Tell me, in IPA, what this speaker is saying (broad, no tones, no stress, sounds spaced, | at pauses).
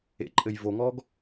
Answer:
ḛ ǃʼ ɘ j v o ŋ ɔ ɡ